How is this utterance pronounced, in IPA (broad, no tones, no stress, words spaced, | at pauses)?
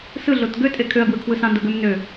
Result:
sɯ ɮotɡø tʼekʰøɐ̯ɡwɯkʰwɯ sɑ̃ndoɡøm nø